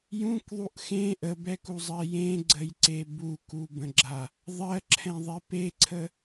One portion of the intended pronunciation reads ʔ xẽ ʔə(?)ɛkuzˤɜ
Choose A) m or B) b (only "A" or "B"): B